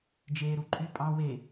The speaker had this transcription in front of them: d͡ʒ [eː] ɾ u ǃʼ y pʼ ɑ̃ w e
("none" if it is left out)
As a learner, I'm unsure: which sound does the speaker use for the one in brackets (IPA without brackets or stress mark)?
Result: eː